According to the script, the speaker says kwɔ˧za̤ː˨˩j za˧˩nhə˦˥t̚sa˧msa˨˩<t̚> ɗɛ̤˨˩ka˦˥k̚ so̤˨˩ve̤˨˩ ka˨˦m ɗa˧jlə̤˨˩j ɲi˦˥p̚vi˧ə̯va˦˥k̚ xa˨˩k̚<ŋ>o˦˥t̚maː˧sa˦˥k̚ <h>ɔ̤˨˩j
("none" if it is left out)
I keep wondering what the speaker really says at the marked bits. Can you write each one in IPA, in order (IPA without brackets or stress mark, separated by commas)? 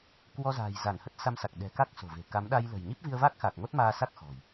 k̚, ŋ, x